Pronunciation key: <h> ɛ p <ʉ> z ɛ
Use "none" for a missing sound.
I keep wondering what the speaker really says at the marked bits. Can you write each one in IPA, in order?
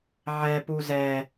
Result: ʕ, u

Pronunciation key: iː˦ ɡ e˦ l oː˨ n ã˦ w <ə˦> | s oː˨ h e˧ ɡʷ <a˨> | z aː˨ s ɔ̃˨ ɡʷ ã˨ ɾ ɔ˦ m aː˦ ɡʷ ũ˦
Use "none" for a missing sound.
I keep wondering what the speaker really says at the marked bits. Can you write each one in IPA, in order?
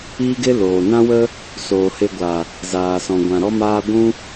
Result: ə˦, a˨

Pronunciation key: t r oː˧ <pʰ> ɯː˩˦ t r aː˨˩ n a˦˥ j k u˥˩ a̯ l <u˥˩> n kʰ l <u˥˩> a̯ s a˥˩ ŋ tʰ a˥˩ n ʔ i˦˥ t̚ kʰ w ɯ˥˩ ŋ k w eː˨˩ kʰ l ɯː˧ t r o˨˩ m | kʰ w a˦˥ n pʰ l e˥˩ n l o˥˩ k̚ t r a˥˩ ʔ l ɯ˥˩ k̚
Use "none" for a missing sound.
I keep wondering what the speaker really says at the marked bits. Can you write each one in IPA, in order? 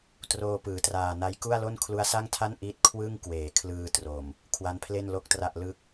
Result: p, o˥˩, u˦˥

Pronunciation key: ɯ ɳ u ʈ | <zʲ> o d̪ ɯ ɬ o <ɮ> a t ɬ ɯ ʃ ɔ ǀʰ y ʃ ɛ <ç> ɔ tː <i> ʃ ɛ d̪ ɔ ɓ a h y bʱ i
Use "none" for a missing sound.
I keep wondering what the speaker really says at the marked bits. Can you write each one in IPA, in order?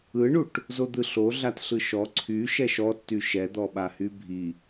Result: z, ɮ, ʃ, y

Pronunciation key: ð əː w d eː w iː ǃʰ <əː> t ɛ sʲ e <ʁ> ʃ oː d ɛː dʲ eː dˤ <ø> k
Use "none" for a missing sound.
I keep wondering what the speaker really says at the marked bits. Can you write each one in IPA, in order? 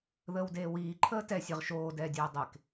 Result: əː, ʁ, e

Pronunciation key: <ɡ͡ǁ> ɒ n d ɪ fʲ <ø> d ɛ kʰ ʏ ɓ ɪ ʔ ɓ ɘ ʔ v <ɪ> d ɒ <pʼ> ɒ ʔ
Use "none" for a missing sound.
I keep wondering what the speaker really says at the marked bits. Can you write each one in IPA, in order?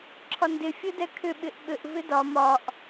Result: ǁʰ, ɘ, ɪ, m

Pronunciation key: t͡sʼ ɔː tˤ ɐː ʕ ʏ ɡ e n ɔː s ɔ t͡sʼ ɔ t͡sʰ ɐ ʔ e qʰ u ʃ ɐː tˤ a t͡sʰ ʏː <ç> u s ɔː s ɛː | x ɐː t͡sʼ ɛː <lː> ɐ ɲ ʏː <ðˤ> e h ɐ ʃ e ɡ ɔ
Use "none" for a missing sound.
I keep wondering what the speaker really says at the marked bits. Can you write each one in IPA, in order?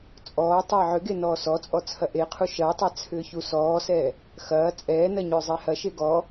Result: ç, n, zˤ

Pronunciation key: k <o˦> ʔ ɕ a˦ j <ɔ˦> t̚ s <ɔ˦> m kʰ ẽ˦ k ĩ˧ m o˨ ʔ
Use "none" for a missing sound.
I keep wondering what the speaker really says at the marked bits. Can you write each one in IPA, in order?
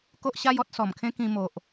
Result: o˦, ɔ˦, ɔ˨˩

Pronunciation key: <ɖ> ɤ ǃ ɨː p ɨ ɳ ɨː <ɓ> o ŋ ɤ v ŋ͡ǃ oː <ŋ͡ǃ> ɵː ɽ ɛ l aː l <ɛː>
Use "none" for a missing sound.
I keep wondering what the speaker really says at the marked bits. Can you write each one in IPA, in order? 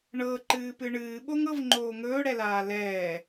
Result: ɳ, ɓ, ŋ, ɛː

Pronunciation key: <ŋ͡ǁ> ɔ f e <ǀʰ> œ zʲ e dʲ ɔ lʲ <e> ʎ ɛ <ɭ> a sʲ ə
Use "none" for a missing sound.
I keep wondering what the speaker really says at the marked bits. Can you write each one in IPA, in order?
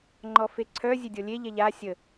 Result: ŋ͡ǃ, ǀʰ, e, ʎ

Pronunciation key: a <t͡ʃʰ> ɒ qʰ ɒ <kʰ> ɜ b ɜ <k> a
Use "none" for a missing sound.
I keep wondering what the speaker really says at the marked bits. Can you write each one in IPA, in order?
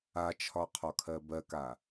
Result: t͡ʃʰ, kʰ, k

